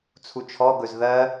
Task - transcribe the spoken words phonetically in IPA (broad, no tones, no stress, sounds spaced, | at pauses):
t͡sʰ u t͡ʃʰ ɔ ɡ ɵ z ð ɜ